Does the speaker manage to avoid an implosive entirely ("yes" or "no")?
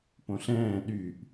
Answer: no